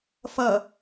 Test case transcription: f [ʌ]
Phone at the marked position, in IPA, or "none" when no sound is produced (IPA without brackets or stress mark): ʌ